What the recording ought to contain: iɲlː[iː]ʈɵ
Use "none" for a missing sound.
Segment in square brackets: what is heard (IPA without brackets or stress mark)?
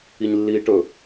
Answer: iː